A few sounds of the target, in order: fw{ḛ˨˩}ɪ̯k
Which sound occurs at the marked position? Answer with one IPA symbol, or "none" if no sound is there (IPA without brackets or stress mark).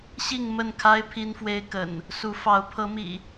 e˦